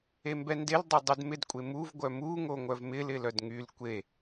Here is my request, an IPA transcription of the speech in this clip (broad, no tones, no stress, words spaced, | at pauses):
embɛndeldˤœ dˤydmɪdkʷʼe muv ɡʷœmu ŋoŋʷœvmɪlɪ lœdŋyl kʷe